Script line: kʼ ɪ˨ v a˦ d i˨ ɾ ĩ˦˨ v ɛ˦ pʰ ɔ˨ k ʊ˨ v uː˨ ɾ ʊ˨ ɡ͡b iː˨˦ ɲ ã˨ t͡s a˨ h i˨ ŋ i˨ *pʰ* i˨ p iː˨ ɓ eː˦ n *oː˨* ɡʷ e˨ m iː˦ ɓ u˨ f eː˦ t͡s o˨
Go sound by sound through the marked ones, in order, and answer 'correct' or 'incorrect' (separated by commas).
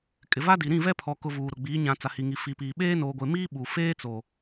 incorrect, correct